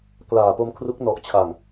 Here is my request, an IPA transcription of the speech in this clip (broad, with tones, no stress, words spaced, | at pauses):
klaː˨˩po˧mkʰru˦˥k̚ nɔ˨˩ʔt͡ɕʰa˨˩ŋ